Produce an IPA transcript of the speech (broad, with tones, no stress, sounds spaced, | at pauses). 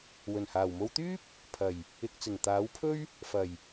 w ɵ˨˩ n h aː˨˩ w m o˧ w t̪ yː˥ p̚ | pʰ ɐ˨˩ j | ɪ˨ k̚ t͡s ɪ˨˩ ŋ t̪ aː˨˥ w pʰ ɵ˥ ɥ | f ɐ˨˩ j